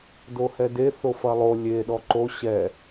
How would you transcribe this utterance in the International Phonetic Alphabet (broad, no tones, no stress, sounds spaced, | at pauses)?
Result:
d o h ɛ d e θ o f ɐ lˠ o lʲ e ɗ ɔ ǃ o ɕ ɛ